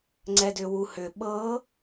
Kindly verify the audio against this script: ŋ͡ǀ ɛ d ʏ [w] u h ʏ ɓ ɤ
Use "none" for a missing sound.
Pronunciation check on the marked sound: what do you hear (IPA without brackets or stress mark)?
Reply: w